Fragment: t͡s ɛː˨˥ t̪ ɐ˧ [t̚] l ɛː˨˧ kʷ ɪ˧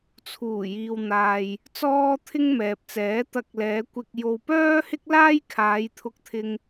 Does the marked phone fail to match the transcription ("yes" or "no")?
yes